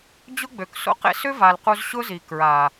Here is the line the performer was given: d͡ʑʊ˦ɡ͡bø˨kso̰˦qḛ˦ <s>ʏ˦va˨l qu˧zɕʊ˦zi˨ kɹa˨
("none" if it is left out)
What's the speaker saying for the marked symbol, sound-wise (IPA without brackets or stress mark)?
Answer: s